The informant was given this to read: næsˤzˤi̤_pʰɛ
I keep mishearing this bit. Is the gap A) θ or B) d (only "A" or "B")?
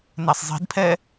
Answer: B